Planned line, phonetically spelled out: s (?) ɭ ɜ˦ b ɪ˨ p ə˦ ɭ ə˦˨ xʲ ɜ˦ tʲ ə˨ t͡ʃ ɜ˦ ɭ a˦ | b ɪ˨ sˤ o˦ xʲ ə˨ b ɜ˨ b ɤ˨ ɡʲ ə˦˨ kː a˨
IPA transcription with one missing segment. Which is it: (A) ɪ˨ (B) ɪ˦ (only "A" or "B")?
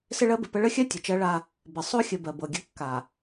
B